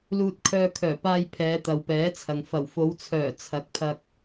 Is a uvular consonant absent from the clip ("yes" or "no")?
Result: yes